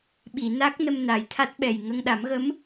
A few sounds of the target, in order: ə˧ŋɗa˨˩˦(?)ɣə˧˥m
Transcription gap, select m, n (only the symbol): m